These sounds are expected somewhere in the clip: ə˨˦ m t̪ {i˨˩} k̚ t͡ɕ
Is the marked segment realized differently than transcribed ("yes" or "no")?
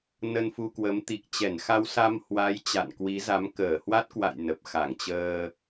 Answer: no